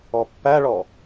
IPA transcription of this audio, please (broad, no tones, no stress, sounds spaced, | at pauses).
ɔ pː æ ɭ ɔ